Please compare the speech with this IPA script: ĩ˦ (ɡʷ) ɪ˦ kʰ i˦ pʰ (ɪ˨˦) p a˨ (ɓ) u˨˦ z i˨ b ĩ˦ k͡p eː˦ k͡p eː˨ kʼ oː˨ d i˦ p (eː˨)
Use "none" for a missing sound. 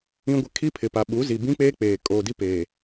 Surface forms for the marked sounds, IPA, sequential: ɡʷ, ɪ˨, ɓ, eː˨

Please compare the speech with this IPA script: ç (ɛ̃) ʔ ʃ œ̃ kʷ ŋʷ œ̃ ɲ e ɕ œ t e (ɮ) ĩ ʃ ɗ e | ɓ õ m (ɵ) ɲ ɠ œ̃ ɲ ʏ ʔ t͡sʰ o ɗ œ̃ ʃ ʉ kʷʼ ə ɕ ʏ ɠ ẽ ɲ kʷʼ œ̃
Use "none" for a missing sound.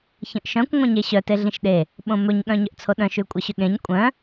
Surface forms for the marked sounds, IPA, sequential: ə̃, ɮ, ɵ

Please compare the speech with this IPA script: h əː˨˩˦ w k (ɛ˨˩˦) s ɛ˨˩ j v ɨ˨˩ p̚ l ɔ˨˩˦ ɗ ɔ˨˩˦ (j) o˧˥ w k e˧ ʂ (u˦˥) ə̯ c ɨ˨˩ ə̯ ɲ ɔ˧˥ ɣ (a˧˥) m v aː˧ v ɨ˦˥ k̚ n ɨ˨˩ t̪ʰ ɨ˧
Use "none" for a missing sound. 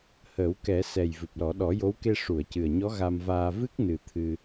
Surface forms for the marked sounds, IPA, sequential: ɛ˨˩˦, j, u˨˩˨, a˧

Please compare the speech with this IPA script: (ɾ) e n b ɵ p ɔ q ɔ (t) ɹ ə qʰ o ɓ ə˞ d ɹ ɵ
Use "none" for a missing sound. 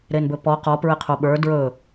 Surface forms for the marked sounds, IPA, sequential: ɾ, p

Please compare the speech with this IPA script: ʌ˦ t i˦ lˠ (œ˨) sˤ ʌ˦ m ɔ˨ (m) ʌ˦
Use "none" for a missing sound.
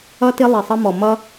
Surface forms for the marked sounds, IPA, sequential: ɛ˨, m

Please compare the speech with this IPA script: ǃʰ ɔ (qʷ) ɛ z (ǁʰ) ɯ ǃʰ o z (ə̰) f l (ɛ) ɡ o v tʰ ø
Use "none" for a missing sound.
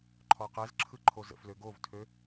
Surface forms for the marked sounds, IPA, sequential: q, ǁʰ, ə̰, ø

